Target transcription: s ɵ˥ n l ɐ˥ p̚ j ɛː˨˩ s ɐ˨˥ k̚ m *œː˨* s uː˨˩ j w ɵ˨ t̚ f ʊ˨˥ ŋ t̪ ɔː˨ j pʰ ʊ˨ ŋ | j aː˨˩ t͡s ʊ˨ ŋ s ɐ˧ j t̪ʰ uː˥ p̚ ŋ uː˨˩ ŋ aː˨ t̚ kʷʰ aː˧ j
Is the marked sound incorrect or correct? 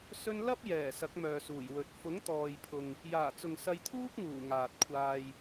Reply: correct